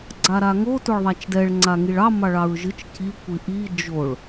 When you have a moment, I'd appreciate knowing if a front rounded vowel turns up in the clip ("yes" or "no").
no